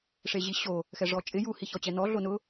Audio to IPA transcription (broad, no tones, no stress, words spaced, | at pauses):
ʂeʑiɕo | xɛʐɔt͡ʃʼɪ ju hiçɔt͡ɕɛnɔ ɮonʊ